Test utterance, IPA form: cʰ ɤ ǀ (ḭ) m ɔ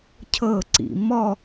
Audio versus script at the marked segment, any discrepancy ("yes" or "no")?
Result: no